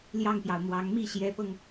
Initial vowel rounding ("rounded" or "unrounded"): unrounded